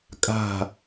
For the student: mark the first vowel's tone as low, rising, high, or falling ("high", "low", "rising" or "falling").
falling